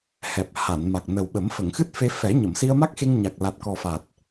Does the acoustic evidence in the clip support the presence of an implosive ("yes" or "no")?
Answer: yes